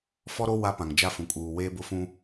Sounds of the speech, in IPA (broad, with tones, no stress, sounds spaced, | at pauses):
f ɔ˦ ɾ o˦ w a˦ p ã˨ ŋ d͡ʒ a˦ f ũ˨ kʼ uː˨ w eː˦ b ʊ˦ f ũ˦